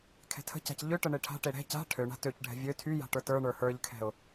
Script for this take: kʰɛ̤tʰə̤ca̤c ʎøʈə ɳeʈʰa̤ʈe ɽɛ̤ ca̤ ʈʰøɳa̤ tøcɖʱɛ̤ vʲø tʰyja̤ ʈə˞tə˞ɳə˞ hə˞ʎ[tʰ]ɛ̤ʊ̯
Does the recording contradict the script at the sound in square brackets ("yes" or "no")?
yes